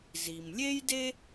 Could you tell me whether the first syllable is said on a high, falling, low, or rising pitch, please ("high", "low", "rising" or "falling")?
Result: low